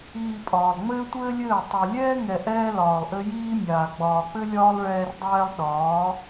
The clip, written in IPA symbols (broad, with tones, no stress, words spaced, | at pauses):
iː˨ pʼɒː˨lˠŋ͡mɘː˦tʷɘː˦lʲɘː˦˨ tˤɛ˨lʲɛː˦ŋɛ˨ ʔɛː˦lɒː˨lˠʔɘ˦ jiː˦mʲaː˨ ɡ͡bɒː˨k͡pɘ˦lʲɒː˦lˠ ɭɛː˦rdˤɛː˦lˠ ɗɒː˨˦